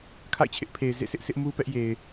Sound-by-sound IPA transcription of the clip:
kʰa̰˦˨ɪ̯t͡ɕʰɪ˦ʔpʰe˨ɪ̯ zḛ˦˨sɪ˦ʔsɪ˦ʔ mu˦pɛ˦ʔ je˨ɪ̯

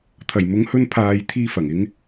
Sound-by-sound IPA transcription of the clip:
t̪ʰɐ˨˩jmʊ˨˥ŋhɵ˧n pʰaː˨jt̪ʰiː˧ fɐ˨˩ŋɪ˨˧ŋ

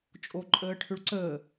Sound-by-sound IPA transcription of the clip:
t͡ʃʼoǃʼəːʈʰʏɭǀəː

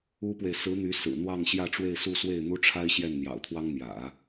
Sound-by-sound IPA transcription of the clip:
u˥pwe˨ɪ̯ sɹ̩˧˥n̪y˧˥ sɹ̩˨˩n̪wɑ˥˧ŋ ɕjä˥˧ʈ͡ʂwe˥˧ɪ̯su˥˧swe˥˩ɪ̯ n̪u˥ʈ͡ʂʰa˥ɪ̯ ɕjɛ˥˩nn̪jɑ̰˨˩ʊ̯t̪ʰwɑ˥ŋn̪jä̰˨˩˦

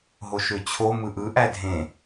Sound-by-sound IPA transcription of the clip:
ɦoʃøt͡ɕʰo mɯʔɯ ʔædʱẽ

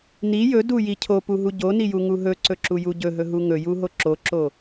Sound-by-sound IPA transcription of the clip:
ni jɵduji cʰopuɦu ɟonijuŋu ɦɵǀɵǁuju ɟɵɦɵɦu ŋɵjuɦo ǁoǁo

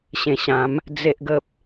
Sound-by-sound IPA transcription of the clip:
ɕẽ˨˩ɕã˨˦m | d͡ze˦ʔɡə˦p̚

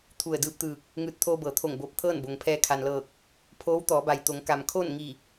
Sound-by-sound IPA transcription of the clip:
t̪ʰu˧˩ə̯dɯː˧p̚t̪ɯː˧˩k̚ | ŋɯː˧˩t̚t̪ʰoː˧ bɤː˩˧t̪ʰo˧˩ŋboː˧˩p̚ t̪ʰɤː˥˨nbo˩ŋpʰɛː˧ kʰa˩nlɤː˧˩k̚ | pʰoː˧˥wt̪ɔː˩˧ba˩jt̪o˩˧ŋ ka˩mkʰoː˥˨n ŋi˧˩

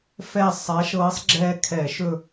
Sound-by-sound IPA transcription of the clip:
fɛ˦˨ sˤa˨˦ʃɤː˨˦sˤ ɡ͡ǁɛː˦kʰɛ˧˩˧ʃɵ˦˨

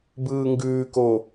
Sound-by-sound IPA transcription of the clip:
bɯːŋɡʉːko

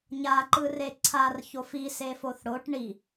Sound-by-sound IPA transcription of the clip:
ɲaǃɯre ǀʰarçof ise foθɽoʈ ɳi

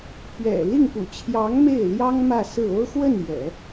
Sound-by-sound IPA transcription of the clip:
pɥɛ̰˨˩ li˥˩ŋpṵ˨˩ t͡ɕʰjɑ˧˥ŋ me˥˩ɪ̯ ljɑ˥ŋ mä˥˧sɹ̩˥˩ o˥ʊ̯xwə˥˩n jɛ̰˨˩˦

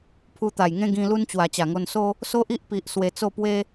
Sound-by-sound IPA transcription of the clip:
pʰu˧t̪a˨˩jŋẽ˦ ɡĩ˧ lu˦nt͡ɕwa˨˩ t͡ɕa˨˩ŋo˧nso˦ | so˦ʔi˦ʔpi˨ʔ swe˧t͡so˥˧pwe˦

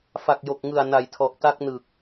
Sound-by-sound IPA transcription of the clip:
fa˨˩k̚jo˨˩k̚ŋɯ˨˩a̯ na˨˩jtʰɔ˨˩ʔta˦˥k̚nɯ˨˩k̚

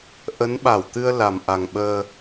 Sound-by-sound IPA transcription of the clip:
ʔə˨˦nɓa˧˩wt̪ɨ˧ə̯ la˨˩mʔa˨˩ŋɓəː˧

